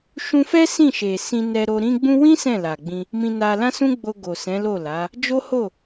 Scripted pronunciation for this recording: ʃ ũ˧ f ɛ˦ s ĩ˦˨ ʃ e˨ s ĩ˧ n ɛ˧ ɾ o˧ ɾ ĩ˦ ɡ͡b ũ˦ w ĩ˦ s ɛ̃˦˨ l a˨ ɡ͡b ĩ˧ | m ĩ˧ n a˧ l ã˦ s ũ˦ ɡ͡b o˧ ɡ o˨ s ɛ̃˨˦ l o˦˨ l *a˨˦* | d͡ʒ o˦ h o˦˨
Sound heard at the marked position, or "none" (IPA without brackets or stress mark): a˨˦